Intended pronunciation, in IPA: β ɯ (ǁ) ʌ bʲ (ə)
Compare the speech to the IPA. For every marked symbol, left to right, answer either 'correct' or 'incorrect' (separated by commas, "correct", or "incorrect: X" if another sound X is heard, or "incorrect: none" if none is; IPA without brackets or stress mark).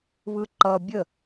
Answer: incorrect: ǃ, correct